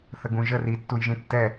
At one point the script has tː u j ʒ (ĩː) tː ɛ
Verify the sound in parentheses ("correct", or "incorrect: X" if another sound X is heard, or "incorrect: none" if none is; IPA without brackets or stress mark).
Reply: incorrect: ĩ